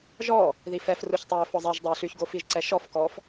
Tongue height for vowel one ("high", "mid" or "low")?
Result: mid